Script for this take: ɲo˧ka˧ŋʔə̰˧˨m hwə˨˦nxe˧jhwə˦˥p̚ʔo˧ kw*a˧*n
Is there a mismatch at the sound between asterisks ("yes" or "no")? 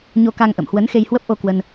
yes